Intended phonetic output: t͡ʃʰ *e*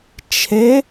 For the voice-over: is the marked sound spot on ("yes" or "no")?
yes